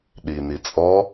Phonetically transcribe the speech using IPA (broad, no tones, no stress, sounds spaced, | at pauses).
ɗ i n i t͡sʼ ɔ